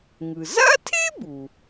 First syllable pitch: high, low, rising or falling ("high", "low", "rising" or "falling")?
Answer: low